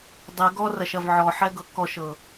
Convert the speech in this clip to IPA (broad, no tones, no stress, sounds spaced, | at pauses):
dˤ ɪ ɡ ɔ r ɐ ʃ ɐ v ʕ ɔ ħ ɛ ɡ ɤ k ɔ ʃ ɤ